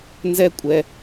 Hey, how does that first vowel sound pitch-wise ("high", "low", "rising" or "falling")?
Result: high